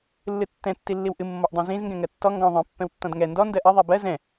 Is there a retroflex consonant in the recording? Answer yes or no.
no